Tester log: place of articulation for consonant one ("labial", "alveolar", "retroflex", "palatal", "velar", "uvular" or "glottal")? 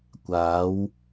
velar